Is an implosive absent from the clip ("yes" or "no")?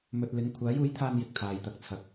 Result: yes